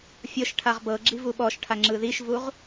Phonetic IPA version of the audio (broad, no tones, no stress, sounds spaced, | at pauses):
fʲ ɤ ʃ ʈʰ a ʁ b ɤ ɡ͡ǁ i v u ɓ ɔ ʃ ʈʰ a ŋ͡ǁ ɯ ð i ʃ v u ʁ